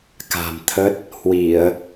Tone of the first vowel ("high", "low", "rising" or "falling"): low